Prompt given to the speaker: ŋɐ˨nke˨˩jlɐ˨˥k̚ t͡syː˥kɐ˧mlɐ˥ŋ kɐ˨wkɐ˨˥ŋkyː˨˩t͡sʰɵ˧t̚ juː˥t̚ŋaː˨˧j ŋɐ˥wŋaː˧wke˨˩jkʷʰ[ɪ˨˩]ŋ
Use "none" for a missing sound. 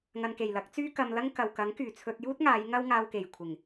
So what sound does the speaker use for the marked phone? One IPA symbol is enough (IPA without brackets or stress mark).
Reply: ɪ˨˩